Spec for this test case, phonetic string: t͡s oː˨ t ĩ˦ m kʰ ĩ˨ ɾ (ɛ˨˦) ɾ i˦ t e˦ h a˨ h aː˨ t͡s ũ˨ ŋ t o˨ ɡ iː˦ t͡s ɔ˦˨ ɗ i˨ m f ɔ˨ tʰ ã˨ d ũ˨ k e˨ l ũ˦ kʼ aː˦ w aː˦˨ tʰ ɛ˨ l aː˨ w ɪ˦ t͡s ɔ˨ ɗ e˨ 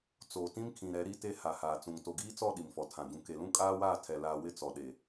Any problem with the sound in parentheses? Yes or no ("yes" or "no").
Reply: no